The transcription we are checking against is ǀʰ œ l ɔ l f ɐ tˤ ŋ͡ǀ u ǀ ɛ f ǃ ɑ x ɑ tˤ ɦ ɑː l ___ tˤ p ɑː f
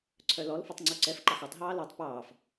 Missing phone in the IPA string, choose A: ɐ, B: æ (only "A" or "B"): B